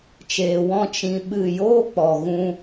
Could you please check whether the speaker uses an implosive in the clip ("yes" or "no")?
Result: yes